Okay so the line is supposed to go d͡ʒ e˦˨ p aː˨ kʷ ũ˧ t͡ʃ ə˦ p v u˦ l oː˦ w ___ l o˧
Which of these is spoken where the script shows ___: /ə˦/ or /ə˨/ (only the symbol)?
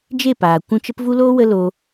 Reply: ə˦